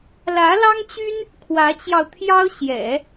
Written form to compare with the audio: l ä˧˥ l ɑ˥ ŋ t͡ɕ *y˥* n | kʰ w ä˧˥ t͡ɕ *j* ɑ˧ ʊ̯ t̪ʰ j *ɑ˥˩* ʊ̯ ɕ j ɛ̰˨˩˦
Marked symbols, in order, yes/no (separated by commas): yes, yes, no